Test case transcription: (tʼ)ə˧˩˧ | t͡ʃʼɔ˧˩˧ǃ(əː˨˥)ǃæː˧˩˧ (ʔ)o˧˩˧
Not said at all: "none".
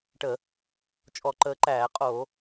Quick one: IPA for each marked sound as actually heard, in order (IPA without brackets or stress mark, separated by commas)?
ʈ, əː˨˥, qʼ